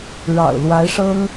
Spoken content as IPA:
ɻ ɑ̰˨˩ ʊ̯ l w a˧˥ ɪ̯ ʂ ɤ˥ ŋ

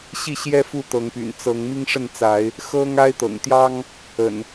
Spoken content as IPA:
ɕ i˥˨ ɕ j ɛ˦ f u˥˨ t̪ ɤ˨˦ ŋ p y̰˨˩ n t͡s ɤ˨˦ ŋ m i˦ ŋ ʂ ə˥˨ n t͡s a˨˦ ɪ̯ | x ɤ˦ ŋ a˦ ɪ̯ t̪ ɤ̰˨˩ ŋ t̪ j ɑ˦ ŋ | ə̰˨˩ n

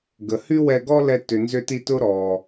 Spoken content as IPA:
ɡ ə˨ h y˦ w ɛ˧ ɡ ɔ˦ l ɛ˧ t ʏ˨ n z ʏ˧ t i˧ t ʊ˦ ɾ ɔ˨

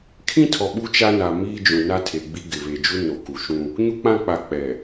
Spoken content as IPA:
kʰ ĩ˦ tʰ ɔ˨ ɓ u˦ t͡ʃ a˦ n a˨ m iː˦ d͡ʒ ũ˨ n a˦ tʰ e˨ ɡ͡b i˦ ɡ ɪ˨ β e˨ d͡ʒ u˦ n o˨ k u˨ ʃ ũ˦ | ɲ u˦ k͡p ã˦ k͡p a˨ k͡p ɛ˨

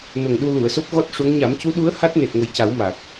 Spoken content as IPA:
n o˨˩ ŋ ɗ u˧ l u˨˩˨ ə̯ s o˦˥ p̚ ɣ ɔ˦˥ t̚ ʂ u˧˥ ŋ ɲ a˨˩˦ m c u˧˥ ɗ u˧˥ ə̯ h a˦˥ t̚ n e˨˩ t̚ ŋ ə˨˩ j c a˨˩˦ w m a˨˩ k̚

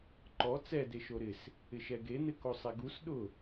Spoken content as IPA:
ǃ ɔ t͡s ɛ d e ʃ o ɾ ɪ s | ɪ ʃ ɛ ɡ e n̪ ɪ k o sˤ ɛ ɡ u s ɗ ʊ

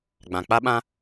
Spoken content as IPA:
ɡ͡b ã˨ k͡p a˦ ɓ ã˦

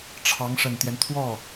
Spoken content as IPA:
ʈ͡ʂʰ ɑ˧˥ ŋ ʂ ə˨˩ n t̪ j ɛ˦ n t̪ʰ w ɔ˥˩

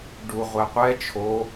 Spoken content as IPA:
ɖ u ʁʷ ɛ qʷ ɛ t͡ʃʰ o

